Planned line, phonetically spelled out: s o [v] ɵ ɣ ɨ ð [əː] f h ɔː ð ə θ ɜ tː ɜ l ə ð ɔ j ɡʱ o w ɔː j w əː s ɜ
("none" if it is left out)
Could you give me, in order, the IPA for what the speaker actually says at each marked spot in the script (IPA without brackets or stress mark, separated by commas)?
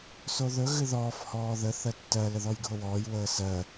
ð, ɔː